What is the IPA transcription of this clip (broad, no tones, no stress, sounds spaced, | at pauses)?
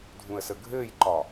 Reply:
dʱ ũ ə̯ s ə ɡʱ ɘː j ǃ ɒ